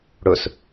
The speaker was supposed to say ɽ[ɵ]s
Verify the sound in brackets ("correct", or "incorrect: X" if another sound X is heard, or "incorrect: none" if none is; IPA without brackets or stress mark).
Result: correct